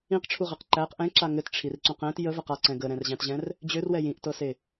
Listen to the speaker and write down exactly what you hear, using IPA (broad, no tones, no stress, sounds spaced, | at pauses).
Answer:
ĩ q ʈ͡ʂʰ u ʁ e q ǃ æ q ʔ ɛ̃ ǁ a ŋ ɘ t ʈ͡ʂʰ i r ǀ ũ q ɛ̃ t j ə v ə q a ǀ ɛ̃ ɡ ə ɾ ɛ̃ r ʑ æ̃ t ʑ ɛ̃ r | d͡ʑ ø r w ɛ j ĩ ʔ t ɤ s e